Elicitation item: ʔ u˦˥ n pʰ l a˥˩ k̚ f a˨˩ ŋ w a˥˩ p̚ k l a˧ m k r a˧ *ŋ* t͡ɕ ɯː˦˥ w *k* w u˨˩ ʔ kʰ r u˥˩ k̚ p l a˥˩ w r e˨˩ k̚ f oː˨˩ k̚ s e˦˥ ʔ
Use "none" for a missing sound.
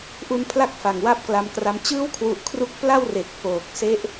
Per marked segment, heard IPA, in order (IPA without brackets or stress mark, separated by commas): m, kʰ